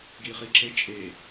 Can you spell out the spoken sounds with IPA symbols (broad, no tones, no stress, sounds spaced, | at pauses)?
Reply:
ɡ iː χ i ǁ e t͡ʃʼ e